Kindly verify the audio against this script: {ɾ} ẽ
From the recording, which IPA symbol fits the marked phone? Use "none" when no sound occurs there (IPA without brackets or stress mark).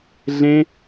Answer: ɮ